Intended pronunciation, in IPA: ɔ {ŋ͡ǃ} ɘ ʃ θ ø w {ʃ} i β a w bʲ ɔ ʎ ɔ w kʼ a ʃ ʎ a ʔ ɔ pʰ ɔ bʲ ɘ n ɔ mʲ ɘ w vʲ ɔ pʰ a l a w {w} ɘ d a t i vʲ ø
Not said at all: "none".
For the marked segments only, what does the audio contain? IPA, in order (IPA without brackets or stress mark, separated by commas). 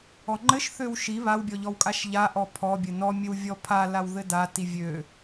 ŋ͡ǃ, ʃ, ð